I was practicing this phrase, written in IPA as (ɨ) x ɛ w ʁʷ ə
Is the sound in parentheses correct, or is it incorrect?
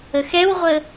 incorrect